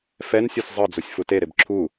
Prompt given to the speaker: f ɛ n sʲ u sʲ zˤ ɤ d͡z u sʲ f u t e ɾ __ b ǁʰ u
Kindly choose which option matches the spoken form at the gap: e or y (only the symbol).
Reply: e